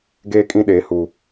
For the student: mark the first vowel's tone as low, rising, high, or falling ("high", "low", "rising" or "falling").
high